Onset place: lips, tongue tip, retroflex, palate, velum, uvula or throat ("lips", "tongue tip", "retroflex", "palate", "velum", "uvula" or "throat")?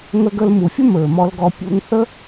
velum